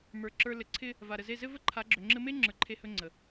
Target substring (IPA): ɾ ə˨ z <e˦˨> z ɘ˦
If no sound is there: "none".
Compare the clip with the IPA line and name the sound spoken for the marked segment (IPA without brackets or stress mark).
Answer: e˦˨